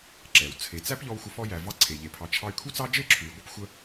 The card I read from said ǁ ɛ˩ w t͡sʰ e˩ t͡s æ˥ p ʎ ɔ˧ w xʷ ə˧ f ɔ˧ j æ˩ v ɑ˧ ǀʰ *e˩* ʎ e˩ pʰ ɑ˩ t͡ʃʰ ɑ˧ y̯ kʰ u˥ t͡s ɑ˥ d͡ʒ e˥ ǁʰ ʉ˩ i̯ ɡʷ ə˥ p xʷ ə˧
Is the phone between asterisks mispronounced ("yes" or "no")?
no